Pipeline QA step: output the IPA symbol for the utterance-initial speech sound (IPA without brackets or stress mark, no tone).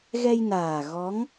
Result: ɣ